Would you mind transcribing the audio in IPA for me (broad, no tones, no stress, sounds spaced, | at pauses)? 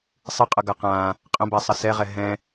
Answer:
sˤ ɨ qʼ ʌ ɡ a q ã | qʼ ə̃ b a sˤ ə s ɛ ʁ ɛ ɦ ɛ̃